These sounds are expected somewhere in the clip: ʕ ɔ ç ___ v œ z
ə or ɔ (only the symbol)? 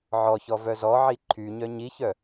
ɔ